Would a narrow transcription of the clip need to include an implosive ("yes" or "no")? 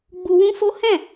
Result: no